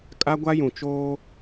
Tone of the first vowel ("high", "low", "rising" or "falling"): high